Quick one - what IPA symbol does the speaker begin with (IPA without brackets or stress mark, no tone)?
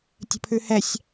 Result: tʲ